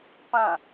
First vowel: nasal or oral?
nasal